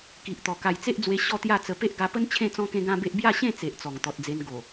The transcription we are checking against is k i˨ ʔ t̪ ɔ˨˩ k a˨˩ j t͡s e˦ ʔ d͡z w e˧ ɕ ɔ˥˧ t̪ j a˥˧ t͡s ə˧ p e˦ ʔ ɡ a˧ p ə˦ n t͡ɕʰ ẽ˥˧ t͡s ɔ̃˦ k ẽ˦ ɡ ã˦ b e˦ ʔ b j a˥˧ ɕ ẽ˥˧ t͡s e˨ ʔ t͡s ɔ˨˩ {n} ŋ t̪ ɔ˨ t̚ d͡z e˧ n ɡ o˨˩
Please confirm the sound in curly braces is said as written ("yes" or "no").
no